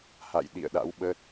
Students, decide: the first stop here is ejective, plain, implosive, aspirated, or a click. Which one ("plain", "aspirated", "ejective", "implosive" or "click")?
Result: implosive